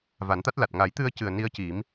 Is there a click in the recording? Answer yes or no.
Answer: no